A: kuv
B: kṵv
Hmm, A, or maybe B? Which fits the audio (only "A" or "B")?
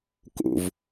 B